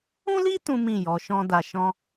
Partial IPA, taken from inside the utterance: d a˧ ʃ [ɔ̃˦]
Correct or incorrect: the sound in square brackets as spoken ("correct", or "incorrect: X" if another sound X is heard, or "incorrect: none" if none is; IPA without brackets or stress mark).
correct